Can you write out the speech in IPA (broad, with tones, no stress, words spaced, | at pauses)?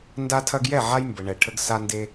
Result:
nda˦tʰɐ˦ɡjɛ˥˨ ʕa˦jmbə˨ɳɛ˨ ʈʰə˦ɡsa˦nde˦